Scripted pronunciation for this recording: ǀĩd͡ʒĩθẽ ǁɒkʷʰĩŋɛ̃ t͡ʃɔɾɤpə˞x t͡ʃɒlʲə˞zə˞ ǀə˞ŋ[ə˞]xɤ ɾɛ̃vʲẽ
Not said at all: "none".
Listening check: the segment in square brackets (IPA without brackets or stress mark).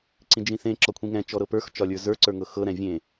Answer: ɤ